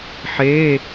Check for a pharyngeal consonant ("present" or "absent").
present